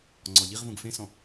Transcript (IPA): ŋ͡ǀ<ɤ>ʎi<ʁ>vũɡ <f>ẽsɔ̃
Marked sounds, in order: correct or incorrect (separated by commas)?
incorrect, correct, correct